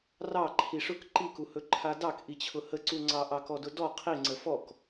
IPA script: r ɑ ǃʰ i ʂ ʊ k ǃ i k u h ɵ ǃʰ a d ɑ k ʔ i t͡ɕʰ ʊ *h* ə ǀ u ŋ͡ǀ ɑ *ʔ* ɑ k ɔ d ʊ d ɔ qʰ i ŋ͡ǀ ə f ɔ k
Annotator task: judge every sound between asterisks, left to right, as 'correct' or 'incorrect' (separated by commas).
correct, correct